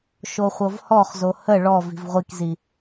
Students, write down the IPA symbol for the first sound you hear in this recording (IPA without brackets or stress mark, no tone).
ʃ